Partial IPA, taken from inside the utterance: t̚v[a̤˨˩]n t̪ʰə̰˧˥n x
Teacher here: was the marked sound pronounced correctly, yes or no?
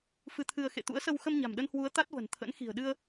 no